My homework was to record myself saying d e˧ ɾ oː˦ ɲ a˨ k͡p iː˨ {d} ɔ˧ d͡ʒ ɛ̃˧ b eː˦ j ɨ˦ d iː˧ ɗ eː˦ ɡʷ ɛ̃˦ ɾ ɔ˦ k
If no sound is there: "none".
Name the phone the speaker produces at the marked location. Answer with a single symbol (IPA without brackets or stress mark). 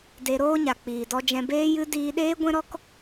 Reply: d